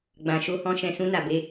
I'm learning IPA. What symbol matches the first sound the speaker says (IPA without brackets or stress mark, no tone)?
ɡ͡b